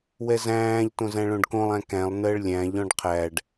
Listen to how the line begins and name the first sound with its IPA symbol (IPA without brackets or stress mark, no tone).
w